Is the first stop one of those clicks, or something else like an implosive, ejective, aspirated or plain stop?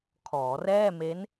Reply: aspirated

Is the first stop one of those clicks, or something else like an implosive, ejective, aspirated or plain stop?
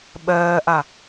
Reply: implosive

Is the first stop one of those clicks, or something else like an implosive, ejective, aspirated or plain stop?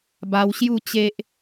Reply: plain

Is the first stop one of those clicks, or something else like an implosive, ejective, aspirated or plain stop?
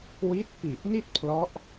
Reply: plain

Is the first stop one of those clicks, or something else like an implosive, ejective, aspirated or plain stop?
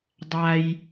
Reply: plain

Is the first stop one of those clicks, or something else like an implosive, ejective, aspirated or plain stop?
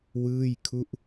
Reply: aspirated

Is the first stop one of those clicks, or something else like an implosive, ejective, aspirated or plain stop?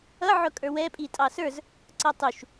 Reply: ejective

